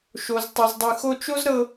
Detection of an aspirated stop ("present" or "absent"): absent